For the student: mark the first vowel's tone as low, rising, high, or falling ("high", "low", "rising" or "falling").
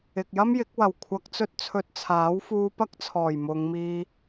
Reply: low